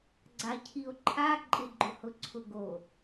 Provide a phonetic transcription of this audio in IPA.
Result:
ɡ͡ǀ a cʰ i o̯ ǃʰ a ǃʼ ɪ ɡ͡ǃ ʊ h ʊ ǀʰ ʊ ɡ o

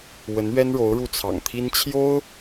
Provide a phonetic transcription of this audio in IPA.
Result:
w ə˧˥ n ɥ ɛ˥ n ɻ o˧˥ ʊ̯ ɻ u˥˩ t͡sʰ ɑ̰˨˩ ŋ t̪ʰ i˥ n t͡ɕʰ j o˥ ʊ̯

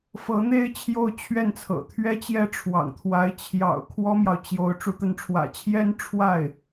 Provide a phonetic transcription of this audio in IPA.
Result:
f ɤ˧˥ n̪ e˥ ɪ̯ t͡ɕʰ j o˥˧ ʊ̯ t͡ɕʰ ɥ ɛ˥˩ n t͡sʰ ɤ̰˨˩ t̪ʰ ɥ ɛ˥ t͡ɕ j ɛ˥ ʈ͡ʂʰ w ɑ̰˨˩ ŋ t̪ʰ w a˧˥ ɪ̯ t͡ɕʰ j ɑ̰˨˩ ʊ̯ kʰ w ɔ˥ m j ɑ˨ ʊ̯ t͡ɕ j o˧˥ ʊ̯ ʈ͡ʂ u˧˥ t̪ ə˧˥ n ʈ͡ʂʰ w ä̰˨˩ t͡ɕʰ j ɛ˥ n ʈ͡ʂʰ w a˥˩ ɪ̯

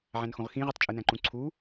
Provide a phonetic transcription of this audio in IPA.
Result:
ʕ æ̃ n x õ ʁ x ĩ ʁ ɯ tˤ t͡ʃʼ ɯ n æ̃ ǃ ũ ǀʰ u

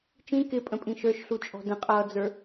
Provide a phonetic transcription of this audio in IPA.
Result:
t͡ʃ ĩ k ɪ pʼ ə̃ pʼ ĩ ʃ ə˞ ʃ ɬ u t͡ʃʼ ɔ̤ d ə̃ qʼ ʌː d͡z ə˞

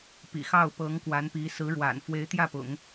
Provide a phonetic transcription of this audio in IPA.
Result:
p ḭ˨˩ x ɑ˥˩ ʊ̯ p ɤ˧˥ ŋ k w a˧˥ n p i˧˥ s ɹ̩˧˥ ɻ w a̰˨˩ n f w e˧˥ ɪ̯ t̪ j ä˥˩ p ʊ̰˨˩˦ ŋ

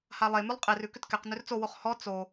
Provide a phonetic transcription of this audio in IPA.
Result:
h a lˠ e m ʉ lˠ qʼ e r ʉ k ʏ t k ɛ q n ʏ r t͡s o w o χ h ɔ t͡s o

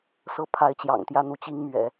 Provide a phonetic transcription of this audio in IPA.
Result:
s ɤ˥˩ pʰ a˧˥ ɪ̯ t͡ɕ j ɑ̰˨˩ ŋ t̪ j ä˥˩ n̪ u˥ t͡ɕ i˥ ŋ m ɥ ɛ̰˨˩˦

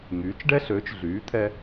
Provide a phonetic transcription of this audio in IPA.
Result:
ŋ yː˩˥ t͡ʃ ɖ ɛ˥ ɬ øː˩˥ t͡ʃ ɮ yː˩˥ t̪ʰ ɛ˧

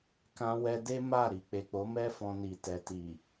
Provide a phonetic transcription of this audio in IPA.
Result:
k ã˧ w ɛ˧ d e˦ m a˦˨ ɾ i˨ k͡p e˨ k͡p o˨˦ m ɛ˦ f ɔ̃˧ n i˨ t ɛ˨ t i˨

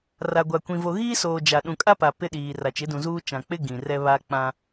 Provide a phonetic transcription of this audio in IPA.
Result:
r a˨ ɡʷ a˨ kʷ ĩ˨ v o˨ ɣ iː˦ s oː˨ d͡ʒ a˨ ɗ ũ˨ kʼ a˦ p a˨ p ɪ˦ ɗ iː˨ r a˨ t͡ʃ ɪ˨˦ d ũ˨ z uː˦ t͡ʃ ã˨ k͡p ɪ˦ ɡ ĩ˨ r ɛ˦ β a˦ k͡p ã˦

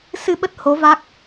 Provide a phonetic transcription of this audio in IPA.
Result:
s ɨ˧ ɓ ə˦˥ t̚ h o˨˦ v a˦˥ k̚

